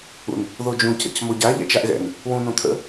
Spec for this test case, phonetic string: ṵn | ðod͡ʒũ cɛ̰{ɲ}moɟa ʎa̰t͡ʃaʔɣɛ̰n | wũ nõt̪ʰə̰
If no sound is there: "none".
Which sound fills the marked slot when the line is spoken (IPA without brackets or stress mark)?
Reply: c